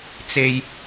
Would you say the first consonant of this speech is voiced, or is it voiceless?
voiceless